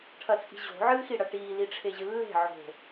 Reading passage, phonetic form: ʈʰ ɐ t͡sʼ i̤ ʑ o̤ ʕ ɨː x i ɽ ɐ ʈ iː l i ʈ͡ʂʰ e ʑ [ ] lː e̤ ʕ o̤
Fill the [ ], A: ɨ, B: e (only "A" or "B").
A